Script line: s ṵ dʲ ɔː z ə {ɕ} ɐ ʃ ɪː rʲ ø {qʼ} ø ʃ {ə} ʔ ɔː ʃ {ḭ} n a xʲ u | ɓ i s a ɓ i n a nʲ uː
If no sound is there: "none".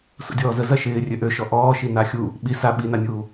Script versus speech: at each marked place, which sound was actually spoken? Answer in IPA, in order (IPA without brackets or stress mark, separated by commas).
z, ʔ, ɔ, i